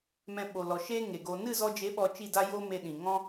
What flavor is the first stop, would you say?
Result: implosive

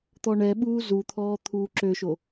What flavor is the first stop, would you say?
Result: plain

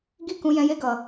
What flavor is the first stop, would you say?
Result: plain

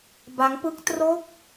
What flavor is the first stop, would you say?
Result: plain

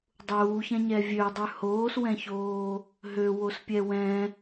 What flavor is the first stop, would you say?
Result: plain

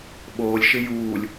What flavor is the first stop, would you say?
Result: implosive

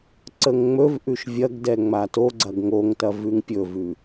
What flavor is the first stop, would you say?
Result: click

